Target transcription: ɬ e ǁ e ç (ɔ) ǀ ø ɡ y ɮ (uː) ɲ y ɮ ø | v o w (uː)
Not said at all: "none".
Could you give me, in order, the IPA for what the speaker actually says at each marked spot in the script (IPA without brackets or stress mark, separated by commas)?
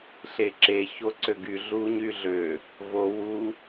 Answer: o, u, u